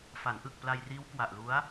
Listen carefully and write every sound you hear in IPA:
f a˩˦ n ʔ ɯ˨˩ k̚ p l a˧ j r iː˦˥ w k w a˨˩ ʔ l u˦˥ a̯

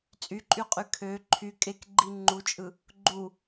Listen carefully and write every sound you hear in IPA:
t͡sʼ y ǃʼ y qʼ y kʰ ø ǃʰ y kʼ e k ɡ͡ǃ i ŋ͡ǃ u t͡ʃʼ ɯ | ɡ͡ǃ u

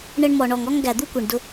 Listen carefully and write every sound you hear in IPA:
ɳ ə˧ ɳ m ɔ˨ ɳ ɔ˨ ŋ ɔ˦ ŋ ɡ æ˨ d̪ u˦ kʷ i˨ ɳ d ʊ˧

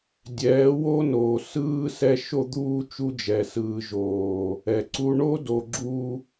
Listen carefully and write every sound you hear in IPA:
dʲ ɛː˨˦ w o˦ n oː˨ s ɯː˧ s ɛ˧ ʃ o˧ d̪ uː˧ t͡ʃ u˧ d͡ʒ ɛ˨ s ɯː˨ ʒ oː˨ | ɛ˨ ǀ u˦ ɳ o˦ d o˨ ɡ͡ǁ u˧

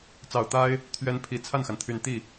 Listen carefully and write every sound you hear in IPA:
t͡s ɑ˨˩ ʊ̯ t̪ a˥ ɪ̯ | t̪ʰ ɥ ɛ˧˥ n pʰ i˨˩ t͡sʰ a˥˩ n x a˩ n t̪ʰ y˨˩ n t̪ i˥˩

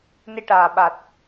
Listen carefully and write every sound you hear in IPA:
n i˧ ʈ aː˨˩ ɓ a˨˩ t̚

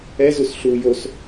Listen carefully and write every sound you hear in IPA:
ɛ z u s ɬ u j o s

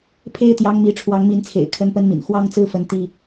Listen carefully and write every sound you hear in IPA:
pʰ e˥ ɪ̯ t̪ j ɑ˧˥ ŋ m i˧˥ ʈ͡ʂʰ w ɑ˧˥ ŋ m i˧˥ n t͡sʰ ḛ˨˩ ɪ̯ kʰ ə˥ n p ə˥ n m ḭ˨˩ n x w ɑ˥ ŋ t͡s ɹ̩˥ f ə˧˥ n t̪ i˥

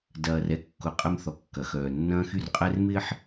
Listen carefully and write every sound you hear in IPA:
d ɐː˨ r ɛ˦ kː ʊ˨ qʼ ɛ˦ m θ ɔ˨ kː ɐ˨ x œː˨ nː ɐ̃ː˦ x y˦ r qʼ ɛ˦ r m ɪː˦ ħ

